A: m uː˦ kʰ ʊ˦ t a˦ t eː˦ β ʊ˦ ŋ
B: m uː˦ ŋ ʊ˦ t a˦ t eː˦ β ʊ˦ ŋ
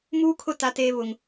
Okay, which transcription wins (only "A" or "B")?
A